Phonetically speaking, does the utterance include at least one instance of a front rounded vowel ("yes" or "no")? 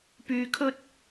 yes